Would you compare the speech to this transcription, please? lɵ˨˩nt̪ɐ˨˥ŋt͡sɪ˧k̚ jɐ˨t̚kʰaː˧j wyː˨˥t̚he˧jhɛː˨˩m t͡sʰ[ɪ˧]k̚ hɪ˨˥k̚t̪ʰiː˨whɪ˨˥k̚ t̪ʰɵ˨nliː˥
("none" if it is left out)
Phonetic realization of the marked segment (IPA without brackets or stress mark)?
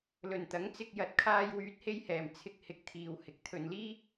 ɪ˧